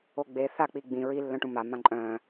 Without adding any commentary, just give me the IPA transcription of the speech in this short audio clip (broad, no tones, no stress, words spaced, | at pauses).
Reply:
oɡ͡be θak͡pi ɡ͡bĩ ɹilːœ̃ʈũ ma mãǃʼœ̃